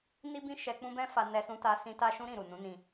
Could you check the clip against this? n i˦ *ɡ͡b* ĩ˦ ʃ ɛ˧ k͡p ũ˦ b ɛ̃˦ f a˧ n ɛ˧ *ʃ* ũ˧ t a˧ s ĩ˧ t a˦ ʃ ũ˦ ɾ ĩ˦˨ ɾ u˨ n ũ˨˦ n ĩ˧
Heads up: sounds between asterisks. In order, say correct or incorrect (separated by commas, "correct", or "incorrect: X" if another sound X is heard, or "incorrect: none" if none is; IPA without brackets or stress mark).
incorrect: b, incorrect: s